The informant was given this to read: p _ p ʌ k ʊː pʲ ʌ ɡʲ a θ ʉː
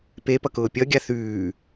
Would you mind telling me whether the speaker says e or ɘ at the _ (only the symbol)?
e